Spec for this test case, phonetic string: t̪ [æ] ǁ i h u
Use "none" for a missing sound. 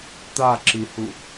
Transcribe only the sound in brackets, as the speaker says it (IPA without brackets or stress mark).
a